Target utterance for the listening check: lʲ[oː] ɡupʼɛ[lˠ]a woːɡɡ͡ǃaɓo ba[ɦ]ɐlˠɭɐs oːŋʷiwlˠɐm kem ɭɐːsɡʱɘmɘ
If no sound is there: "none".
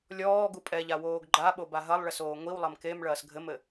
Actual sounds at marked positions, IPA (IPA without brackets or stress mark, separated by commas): ɔː, ʎ, ɦ